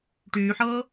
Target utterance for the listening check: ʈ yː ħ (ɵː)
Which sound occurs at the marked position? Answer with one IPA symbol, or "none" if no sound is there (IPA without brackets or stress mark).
ɤː